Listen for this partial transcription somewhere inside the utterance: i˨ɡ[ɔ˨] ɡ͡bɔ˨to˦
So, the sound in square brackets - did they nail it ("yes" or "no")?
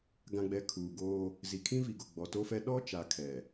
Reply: no